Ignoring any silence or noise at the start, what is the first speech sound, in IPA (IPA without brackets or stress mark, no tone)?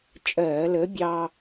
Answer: t͡ʃʼ